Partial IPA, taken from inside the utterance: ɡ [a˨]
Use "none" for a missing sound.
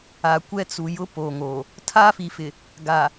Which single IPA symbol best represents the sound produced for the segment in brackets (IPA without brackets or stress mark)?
a˨